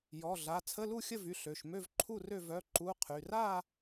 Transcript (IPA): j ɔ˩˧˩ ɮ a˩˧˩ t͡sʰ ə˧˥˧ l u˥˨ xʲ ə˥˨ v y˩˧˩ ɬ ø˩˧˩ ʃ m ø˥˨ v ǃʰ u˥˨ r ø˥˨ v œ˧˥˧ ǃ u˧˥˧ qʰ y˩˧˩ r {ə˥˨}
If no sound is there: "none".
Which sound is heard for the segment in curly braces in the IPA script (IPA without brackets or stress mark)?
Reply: a˥˨